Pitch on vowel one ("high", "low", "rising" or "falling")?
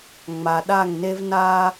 low